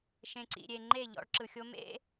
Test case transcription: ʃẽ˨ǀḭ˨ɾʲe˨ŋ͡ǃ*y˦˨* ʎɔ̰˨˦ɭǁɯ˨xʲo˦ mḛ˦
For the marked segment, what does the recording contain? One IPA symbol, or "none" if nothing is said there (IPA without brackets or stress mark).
e˦˨